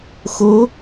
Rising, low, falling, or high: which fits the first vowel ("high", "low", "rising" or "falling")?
rising